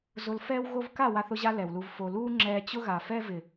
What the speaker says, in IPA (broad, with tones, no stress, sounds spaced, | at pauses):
z ʊ˧ l f ɛː˦ w ɣ o˦ v k a˦˨ w a˧ θ ʊ˧ ʑ a˧ l ɛ˨ w l u˧ v f o˨ l uː˦ ŋ͡ǁ ɛː˧ t͡ɕ ʊ˦ ɣ a˨ f ɛ˦ v ɪ˨